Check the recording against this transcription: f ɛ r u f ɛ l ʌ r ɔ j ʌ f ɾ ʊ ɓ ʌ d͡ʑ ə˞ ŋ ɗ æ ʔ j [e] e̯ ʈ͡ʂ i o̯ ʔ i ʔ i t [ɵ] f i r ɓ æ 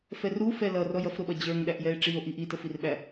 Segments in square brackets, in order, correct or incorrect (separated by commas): incorrect, incorrect